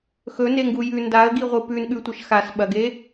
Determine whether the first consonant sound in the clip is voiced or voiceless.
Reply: voiceless